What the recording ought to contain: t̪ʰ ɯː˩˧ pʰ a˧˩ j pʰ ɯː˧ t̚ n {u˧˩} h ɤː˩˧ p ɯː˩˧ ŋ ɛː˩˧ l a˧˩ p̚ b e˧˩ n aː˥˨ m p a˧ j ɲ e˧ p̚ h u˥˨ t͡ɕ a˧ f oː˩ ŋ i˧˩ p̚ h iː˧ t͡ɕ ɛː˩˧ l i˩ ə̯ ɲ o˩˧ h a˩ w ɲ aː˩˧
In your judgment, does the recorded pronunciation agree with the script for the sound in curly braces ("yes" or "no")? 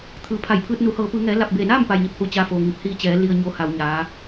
no